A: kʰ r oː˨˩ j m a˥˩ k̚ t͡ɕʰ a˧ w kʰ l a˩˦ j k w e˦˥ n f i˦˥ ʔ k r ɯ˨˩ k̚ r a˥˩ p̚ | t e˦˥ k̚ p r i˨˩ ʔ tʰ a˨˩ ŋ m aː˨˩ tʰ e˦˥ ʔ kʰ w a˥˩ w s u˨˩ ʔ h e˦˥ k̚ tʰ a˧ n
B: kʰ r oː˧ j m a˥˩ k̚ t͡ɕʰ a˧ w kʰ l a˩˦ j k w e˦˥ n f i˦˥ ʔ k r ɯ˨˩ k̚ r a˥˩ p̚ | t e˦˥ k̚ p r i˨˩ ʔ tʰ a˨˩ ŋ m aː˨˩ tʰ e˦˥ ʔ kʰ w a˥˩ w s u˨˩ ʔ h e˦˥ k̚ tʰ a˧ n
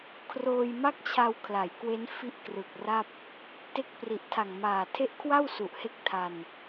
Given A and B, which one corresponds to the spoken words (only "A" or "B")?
B